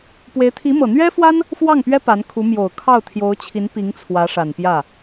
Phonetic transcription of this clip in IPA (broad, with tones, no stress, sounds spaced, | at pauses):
p w e˧˥ ɪ̯ t̪ʰ i˧˥ m ɤ˨˩ n̪ ɥ ɛ˥ f w a˥ n | f w ɑ˥˩ ŋ p ɥ ɛ˥ p a˧˥ n kʰ u˧˥ m j o˨˩ ʊ̯ kʰ ɑ˥˩ ʊ̯ t̪ʰ j o˧˥ ʊ̯ t͡ɕʰ i˧˥ n p i˧˥ ŋ t͡sʰ w ä˧˥ ʂ a˨˩ n p j ä˥˩